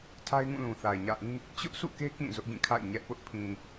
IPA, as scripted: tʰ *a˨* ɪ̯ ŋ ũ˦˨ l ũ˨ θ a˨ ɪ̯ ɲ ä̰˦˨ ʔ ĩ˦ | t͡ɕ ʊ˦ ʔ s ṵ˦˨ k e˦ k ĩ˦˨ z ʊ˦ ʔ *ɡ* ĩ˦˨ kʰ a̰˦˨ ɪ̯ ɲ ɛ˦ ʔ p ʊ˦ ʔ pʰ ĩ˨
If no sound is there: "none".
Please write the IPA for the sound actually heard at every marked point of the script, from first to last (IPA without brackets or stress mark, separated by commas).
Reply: a˦, ɡ